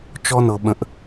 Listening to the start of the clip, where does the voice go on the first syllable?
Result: high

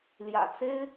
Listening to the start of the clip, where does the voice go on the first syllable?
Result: low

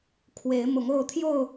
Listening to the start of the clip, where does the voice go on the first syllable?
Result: rising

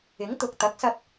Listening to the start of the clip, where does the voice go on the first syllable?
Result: rising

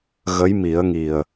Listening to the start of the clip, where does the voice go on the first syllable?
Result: rising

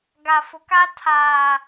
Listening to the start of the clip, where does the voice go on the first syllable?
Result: low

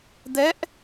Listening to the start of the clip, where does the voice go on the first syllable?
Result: rising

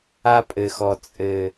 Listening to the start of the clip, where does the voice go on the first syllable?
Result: high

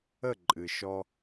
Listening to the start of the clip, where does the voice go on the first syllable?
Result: falling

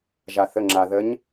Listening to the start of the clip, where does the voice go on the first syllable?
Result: low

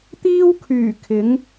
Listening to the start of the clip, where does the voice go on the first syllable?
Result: high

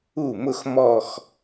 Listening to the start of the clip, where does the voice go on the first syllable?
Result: falling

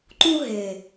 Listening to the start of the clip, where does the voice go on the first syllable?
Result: high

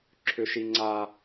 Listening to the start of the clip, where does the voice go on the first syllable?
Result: high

